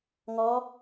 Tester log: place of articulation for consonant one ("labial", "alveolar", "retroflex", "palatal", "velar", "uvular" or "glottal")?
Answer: velar